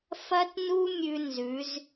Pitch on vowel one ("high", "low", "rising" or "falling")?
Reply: high